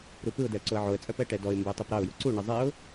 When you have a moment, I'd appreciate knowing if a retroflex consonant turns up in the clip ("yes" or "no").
yes